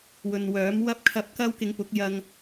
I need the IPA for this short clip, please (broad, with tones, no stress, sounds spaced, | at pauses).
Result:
w ɵ˨ n w œː˨˥ m w ɐ˧ p̚ kʰ ɐ˨˥ p̚ k ɐ˧ w k ɪ˨˧ ŋ p ʊ˨˥ k̚ j ɐ˧ ŋ